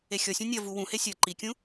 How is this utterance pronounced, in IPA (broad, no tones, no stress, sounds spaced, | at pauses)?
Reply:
e xʲ ɔ sʲ ũ nʲ ʌ v u w ũ h e sʲ ʌ ǃ i kʲ ũ